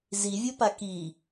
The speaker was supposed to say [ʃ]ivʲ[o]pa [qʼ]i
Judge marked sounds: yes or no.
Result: no, yes, no

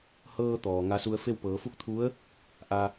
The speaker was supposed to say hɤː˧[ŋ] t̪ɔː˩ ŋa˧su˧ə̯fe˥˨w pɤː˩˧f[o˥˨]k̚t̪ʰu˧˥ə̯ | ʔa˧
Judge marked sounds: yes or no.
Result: no, no

